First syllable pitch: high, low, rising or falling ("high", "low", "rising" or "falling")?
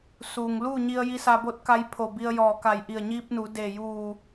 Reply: low